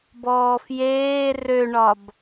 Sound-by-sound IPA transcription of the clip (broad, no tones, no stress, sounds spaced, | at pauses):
b ɔː f j eː r ø ɳ ɒ b